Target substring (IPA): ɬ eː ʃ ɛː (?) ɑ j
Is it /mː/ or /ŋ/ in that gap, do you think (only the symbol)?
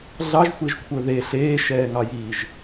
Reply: ŋ